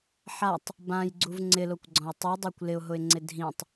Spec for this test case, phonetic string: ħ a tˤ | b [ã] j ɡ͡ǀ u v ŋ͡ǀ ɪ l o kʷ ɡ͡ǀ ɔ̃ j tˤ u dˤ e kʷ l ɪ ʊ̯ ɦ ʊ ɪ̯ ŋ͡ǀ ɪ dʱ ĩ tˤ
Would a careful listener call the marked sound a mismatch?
no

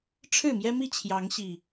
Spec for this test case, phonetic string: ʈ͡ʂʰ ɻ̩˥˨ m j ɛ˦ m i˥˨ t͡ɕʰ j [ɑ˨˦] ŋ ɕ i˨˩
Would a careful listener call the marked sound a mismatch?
no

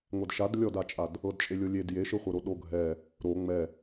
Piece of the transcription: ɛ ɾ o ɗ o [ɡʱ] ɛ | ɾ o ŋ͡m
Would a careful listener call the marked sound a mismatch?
no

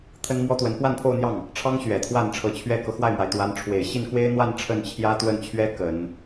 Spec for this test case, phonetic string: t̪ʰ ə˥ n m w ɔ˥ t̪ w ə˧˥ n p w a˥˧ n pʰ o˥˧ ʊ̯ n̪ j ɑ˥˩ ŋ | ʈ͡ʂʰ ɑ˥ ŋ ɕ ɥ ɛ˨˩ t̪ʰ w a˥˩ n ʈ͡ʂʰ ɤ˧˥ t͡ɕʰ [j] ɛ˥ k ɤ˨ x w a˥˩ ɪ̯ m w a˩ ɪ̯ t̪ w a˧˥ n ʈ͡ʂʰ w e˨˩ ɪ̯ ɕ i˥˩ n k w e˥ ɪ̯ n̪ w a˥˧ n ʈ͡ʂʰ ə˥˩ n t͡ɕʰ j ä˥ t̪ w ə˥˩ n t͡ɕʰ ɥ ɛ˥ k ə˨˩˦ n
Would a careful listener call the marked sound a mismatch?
yes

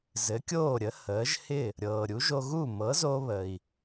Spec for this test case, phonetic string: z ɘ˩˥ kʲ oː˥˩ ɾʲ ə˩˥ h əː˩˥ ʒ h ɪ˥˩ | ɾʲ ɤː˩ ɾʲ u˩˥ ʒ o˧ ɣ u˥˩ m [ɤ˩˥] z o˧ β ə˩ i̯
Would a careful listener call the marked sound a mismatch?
no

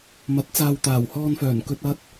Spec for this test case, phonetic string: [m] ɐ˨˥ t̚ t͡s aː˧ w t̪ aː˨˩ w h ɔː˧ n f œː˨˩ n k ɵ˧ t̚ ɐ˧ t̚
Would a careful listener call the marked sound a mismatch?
no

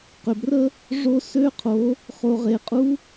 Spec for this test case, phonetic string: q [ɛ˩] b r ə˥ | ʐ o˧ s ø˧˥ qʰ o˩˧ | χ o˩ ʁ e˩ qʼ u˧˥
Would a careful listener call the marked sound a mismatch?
yes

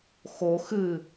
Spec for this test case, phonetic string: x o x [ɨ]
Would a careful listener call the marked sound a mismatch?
no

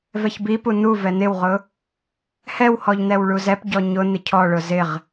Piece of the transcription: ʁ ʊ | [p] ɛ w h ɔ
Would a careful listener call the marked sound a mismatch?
yes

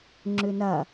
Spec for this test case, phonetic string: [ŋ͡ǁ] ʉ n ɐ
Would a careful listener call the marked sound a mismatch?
no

